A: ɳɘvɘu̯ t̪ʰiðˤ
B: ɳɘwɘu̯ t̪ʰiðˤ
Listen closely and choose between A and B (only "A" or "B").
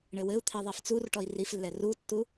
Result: B